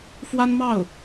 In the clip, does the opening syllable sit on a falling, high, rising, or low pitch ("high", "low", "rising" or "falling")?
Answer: high